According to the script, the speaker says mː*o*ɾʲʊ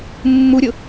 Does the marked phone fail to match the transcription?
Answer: yes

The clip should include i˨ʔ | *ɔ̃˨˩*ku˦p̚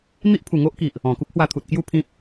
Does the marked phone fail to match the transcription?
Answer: no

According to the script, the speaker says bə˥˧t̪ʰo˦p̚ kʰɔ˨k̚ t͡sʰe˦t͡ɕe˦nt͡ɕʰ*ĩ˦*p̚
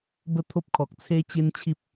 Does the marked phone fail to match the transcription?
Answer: yes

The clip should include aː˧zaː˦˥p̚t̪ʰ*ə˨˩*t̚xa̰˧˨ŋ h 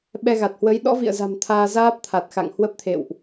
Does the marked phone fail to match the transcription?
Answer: yes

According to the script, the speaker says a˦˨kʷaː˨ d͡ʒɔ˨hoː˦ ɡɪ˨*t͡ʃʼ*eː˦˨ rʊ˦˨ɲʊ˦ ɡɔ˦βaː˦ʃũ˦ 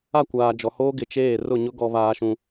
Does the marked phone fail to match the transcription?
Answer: yes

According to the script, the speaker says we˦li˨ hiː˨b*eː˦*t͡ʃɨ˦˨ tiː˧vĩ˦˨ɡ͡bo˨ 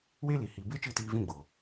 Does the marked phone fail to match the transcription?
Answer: no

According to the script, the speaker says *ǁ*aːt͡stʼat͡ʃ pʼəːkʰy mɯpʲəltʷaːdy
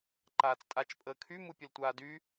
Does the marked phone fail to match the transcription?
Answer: yes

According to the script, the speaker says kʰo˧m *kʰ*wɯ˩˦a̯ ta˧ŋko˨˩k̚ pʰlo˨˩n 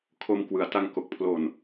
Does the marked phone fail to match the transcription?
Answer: yes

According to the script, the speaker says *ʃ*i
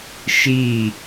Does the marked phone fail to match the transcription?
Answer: no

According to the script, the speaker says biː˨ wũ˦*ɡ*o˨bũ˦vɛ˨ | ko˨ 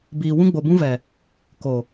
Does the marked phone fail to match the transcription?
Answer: yes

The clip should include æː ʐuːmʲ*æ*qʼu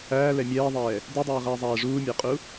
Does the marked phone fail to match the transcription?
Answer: no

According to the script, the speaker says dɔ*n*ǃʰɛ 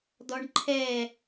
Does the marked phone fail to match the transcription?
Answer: yes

